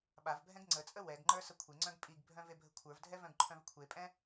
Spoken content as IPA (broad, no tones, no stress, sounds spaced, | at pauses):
ɓ a v bʱ ɛ̃ ɡ ŋ͡ǀ ə t͡sʼ ə w ɛ ɡ ŋ͡ǃ ə˞ s ə kʷʰ e ŋ͡ǀ œ̃ ɡ pʼ i ɡ bʱ œ̃ v e bʱ ə kʷʰ ə˞ v dʱ ɛ v œ̃ ɡ ǃʰ œ̃ v kʷʰ e pʼ ɛ̃